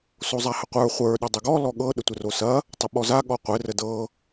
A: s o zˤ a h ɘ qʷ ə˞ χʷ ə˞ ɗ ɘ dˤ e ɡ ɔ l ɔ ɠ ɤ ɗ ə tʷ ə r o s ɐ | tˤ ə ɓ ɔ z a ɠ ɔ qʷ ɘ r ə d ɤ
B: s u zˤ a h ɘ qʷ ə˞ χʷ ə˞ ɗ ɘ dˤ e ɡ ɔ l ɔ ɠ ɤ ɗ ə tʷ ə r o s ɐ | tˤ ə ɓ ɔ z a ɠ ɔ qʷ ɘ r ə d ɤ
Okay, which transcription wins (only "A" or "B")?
A